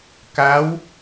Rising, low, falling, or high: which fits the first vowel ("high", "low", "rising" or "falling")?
rising